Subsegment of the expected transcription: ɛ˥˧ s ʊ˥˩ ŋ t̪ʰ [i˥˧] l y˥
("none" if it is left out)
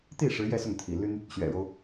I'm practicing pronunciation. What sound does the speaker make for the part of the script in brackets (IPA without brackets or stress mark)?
ḭ˨˩